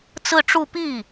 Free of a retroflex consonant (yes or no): no